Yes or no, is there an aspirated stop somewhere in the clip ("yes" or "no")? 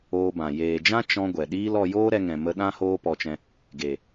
no